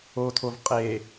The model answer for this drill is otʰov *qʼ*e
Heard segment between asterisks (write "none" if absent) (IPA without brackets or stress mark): qʼ